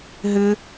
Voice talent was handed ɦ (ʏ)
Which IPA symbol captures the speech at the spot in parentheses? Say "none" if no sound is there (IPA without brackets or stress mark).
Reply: ʏ